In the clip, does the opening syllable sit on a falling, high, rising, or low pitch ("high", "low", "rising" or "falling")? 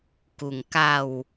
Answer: low